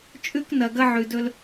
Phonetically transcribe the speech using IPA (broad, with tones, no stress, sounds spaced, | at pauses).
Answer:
t͡ʃʼ ʉ˦ k n ɐ˨ ɡ ɐ˦ ʕ ʉ˨ d ɵ˦ l